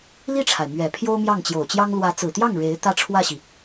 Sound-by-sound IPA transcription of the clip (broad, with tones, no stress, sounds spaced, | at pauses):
l i˥˩ ʈ͡ʂʰ a˩ ɪ̯ m ɥ ɛ˨˩ pʰ j o˥ ʊ̯ m j ɑ˥˩ ŋ t͡ɕ j o˨˩ ʊ̯ t͡ɕ j ɑ˥ ŋ l w ä˧˥ t͡s ɹ̩˨˩ t̪ j ɑ˥˩ ŋ ɻ e˧˥ ɪ̯ t̪ ä˥˧ ʈ͡ʂʰ w ä˥˩ ɕ i˩